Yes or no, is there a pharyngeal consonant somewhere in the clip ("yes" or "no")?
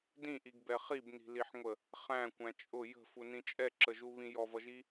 yes